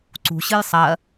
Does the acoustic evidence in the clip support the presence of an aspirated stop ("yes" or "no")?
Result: no